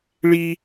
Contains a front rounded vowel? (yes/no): no